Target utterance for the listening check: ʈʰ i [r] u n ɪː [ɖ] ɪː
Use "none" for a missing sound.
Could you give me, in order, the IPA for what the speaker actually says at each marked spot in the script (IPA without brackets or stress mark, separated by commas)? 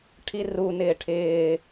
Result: r, ʈʰ